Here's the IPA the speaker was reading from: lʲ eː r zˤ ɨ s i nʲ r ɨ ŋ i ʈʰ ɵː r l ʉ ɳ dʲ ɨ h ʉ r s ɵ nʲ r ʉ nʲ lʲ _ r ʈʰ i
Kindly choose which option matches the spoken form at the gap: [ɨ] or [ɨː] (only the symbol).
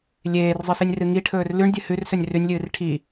ɨː